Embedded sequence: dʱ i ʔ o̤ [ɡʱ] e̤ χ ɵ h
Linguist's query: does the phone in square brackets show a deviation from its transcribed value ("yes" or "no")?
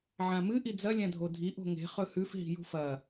yes